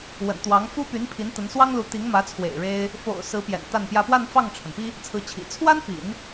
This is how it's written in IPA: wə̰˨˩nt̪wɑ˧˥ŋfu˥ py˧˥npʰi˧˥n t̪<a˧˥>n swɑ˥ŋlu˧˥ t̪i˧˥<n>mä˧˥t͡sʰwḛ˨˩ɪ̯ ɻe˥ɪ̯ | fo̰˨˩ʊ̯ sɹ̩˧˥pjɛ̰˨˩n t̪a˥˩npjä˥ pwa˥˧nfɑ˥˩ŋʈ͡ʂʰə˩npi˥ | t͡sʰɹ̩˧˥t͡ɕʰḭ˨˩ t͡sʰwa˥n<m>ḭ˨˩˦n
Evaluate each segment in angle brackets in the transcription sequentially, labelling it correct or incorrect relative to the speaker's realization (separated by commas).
incorrect, incorrect, incorrect